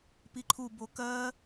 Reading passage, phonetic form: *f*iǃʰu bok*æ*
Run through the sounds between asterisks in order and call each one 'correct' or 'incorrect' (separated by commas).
incorrect, incorrect